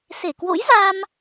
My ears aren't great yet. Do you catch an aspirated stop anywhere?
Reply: no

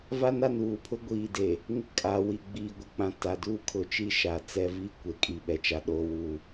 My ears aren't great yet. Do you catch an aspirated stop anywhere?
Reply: yes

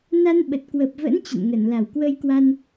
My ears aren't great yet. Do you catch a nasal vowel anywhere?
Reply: no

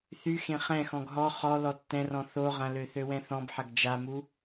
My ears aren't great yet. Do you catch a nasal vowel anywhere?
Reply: yes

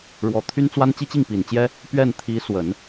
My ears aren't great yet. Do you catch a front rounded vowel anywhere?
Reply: yes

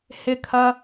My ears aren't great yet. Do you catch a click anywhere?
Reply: no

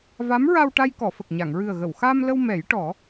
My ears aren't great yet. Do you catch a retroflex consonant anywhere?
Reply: yes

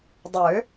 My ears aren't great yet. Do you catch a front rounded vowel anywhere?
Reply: yes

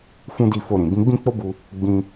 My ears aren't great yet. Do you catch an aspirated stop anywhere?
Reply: no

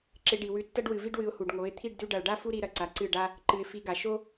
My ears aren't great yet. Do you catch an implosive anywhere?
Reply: no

